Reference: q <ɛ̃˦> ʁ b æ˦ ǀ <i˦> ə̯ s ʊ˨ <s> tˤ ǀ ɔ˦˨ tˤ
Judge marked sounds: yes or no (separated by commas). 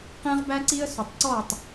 yes, yes, no